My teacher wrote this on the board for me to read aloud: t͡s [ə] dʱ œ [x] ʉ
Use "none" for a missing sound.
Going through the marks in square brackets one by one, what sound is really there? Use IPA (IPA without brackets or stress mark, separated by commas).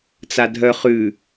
a, χ